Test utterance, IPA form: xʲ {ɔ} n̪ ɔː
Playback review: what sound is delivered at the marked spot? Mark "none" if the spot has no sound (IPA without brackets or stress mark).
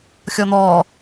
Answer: ɔ